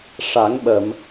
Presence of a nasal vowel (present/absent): absent